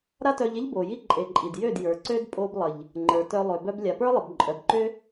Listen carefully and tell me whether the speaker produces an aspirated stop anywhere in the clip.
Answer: no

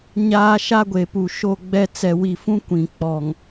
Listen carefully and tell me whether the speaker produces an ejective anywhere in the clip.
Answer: no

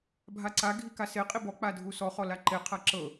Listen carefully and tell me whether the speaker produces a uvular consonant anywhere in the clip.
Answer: yes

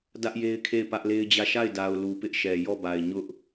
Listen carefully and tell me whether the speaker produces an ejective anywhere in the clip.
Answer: no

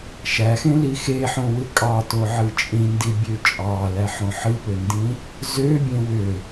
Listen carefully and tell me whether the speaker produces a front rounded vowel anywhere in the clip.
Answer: yes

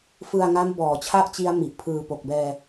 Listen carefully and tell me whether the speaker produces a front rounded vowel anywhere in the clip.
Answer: no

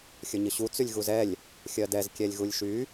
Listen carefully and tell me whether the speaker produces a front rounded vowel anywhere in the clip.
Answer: yes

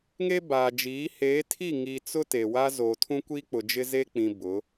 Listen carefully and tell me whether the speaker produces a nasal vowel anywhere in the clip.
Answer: yes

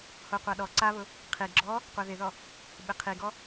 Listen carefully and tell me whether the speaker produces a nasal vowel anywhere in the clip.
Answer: no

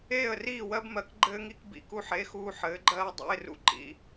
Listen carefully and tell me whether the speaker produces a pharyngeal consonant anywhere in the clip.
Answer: yes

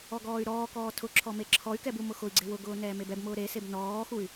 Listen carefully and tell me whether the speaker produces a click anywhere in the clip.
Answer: yes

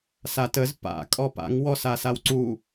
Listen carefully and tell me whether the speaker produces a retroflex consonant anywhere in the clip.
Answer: no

